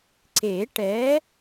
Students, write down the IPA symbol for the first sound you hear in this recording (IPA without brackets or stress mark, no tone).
ǀ